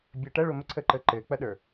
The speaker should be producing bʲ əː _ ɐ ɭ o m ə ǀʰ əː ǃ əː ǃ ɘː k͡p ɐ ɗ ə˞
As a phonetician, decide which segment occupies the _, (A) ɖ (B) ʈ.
B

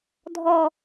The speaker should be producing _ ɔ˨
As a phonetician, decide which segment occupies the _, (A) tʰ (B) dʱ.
B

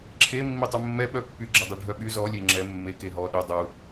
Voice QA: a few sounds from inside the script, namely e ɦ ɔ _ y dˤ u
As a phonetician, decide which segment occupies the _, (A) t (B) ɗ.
B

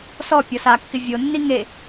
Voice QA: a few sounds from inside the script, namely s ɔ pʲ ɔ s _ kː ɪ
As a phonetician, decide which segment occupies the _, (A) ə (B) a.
B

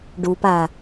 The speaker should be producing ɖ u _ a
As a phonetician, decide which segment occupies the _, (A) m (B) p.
B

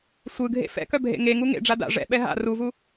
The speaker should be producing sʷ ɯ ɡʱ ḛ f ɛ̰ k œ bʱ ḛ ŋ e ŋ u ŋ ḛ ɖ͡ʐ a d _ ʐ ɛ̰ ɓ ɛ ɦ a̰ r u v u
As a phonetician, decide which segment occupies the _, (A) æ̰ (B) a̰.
B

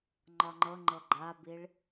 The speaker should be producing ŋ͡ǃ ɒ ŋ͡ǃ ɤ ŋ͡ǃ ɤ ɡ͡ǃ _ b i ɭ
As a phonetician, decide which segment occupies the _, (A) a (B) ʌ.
A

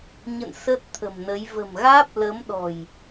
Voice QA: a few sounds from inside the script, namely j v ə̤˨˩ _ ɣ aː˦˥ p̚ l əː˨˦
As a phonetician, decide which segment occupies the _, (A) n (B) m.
B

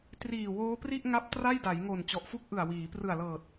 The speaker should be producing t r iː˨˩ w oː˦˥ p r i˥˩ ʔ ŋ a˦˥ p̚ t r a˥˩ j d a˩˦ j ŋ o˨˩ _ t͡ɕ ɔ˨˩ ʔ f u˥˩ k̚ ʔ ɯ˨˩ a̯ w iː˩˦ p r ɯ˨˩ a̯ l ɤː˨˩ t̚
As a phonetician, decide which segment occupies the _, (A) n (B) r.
A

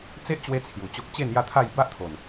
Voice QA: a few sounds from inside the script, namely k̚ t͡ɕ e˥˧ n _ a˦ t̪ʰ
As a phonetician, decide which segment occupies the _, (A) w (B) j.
B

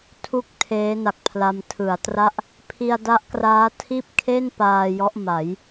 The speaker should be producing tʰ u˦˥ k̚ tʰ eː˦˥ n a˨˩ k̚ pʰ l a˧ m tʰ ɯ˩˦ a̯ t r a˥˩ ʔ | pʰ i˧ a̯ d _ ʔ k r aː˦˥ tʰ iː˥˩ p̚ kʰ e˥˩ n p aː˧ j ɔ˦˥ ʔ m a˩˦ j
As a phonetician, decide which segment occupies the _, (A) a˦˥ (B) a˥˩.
A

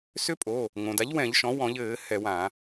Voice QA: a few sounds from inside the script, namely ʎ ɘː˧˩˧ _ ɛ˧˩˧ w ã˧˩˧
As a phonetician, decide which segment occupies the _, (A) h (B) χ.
A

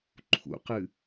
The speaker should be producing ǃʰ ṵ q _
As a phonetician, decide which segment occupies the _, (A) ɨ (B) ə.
A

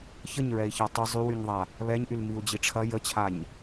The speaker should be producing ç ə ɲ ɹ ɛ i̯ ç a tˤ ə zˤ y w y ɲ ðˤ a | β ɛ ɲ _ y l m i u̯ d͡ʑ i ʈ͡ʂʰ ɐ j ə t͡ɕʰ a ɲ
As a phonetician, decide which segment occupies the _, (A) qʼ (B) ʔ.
B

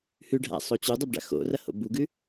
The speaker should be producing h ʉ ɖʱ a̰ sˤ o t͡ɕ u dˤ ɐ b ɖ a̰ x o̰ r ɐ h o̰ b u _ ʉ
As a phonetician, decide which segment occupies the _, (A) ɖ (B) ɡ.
B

